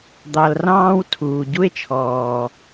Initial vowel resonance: oral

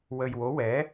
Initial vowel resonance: oral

